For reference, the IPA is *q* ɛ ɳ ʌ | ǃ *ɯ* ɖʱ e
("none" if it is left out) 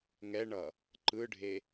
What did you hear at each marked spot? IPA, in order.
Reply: ŋ, ɯ

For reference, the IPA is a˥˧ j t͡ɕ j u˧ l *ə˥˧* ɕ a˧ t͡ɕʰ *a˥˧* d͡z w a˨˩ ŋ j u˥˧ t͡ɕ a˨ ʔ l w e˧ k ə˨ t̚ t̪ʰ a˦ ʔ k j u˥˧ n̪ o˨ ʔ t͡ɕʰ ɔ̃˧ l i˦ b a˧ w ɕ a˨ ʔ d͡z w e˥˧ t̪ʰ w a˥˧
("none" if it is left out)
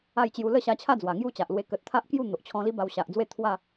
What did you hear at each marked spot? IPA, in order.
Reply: ə˥˧, a˥˧

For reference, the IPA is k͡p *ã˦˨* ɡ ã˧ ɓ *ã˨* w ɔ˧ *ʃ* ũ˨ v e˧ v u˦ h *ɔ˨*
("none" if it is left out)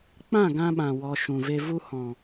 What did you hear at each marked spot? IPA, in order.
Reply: ã˦˨, ã˨, ʃ, ɔ̃˨

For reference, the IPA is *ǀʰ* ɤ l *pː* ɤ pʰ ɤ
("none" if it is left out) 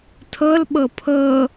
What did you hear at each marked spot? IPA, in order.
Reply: tʰ, ɓ

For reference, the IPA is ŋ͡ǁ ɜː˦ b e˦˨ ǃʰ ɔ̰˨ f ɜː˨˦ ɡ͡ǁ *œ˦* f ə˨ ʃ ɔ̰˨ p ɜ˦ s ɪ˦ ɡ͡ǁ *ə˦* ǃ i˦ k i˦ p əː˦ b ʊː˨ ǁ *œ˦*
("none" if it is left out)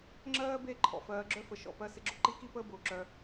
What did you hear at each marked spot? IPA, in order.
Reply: œ˦, ʊ˦, œ˦

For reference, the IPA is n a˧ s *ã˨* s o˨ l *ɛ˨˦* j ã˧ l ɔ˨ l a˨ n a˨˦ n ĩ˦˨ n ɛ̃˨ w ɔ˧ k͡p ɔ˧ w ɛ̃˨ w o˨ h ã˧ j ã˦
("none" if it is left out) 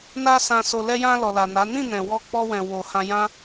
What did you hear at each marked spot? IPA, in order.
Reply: ã˨, ɛ˧

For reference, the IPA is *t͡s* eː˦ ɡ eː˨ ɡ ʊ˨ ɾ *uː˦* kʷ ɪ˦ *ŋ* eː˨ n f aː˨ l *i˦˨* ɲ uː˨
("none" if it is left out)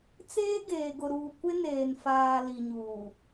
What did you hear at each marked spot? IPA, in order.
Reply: t͡s, uː˨, n, i˨

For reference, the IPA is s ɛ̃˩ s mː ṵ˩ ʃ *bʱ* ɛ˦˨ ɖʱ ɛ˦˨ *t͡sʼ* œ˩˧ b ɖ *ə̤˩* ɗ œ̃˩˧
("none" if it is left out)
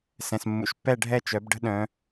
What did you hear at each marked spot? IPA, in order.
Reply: pː, t͡ʃ, ə̤˦

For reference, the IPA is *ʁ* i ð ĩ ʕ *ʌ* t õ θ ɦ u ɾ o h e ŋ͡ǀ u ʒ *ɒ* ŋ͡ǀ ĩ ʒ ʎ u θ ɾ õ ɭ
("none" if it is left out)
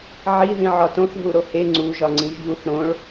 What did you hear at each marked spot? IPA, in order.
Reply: ʕ, ɒ, ɒ

